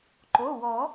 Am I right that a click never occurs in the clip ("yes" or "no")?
no